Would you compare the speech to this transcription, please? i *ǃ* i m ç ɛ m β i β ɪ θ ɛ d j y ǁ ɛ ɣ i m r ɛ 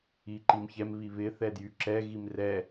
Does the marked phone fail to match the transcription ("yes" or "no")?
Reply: no